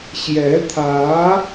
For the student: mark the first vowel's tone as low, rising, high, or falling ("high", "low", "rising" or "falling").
rising